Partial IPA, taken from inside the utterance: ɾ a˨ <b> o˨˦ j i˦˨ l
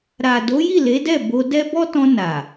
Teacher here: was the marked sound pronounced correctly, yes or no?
no